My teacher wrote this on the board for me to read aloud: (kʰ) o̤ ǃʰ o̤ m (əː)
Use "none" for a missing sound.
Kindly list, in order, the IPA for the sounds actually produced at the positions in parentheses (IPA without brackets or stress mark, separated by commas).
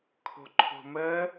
kʰ, əː